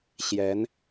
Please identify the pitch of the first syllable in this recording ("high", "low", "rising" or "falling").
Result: rising